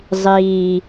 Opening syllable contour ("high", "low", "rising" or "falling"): low